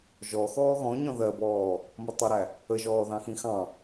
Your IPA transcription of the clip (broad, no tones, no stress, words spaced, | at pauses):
ʒɔ xɔːɣɔ̃ ɲɔ̃ðɜbɔː | mʌtˤʊɾæ | əʒɔː ðɑ̃xĩxɑ̃